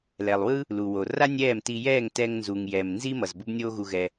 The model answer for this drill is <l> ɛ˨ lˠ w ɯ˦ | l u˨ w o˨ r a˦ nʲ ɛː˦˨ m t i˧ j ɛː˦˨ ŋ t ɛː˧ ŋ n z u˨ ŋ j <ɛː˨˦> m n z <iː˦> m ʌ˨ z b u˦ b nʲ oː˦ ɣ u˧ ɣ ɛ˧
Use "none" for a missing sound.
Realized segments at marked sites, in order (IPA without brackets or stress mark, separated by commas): l, ɛː˨, iː˦